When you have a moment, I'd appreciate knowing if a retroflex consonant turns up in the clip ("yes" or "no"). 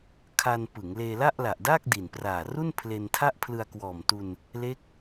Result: no